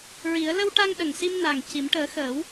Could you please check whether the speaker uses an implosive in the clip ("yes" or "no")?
yes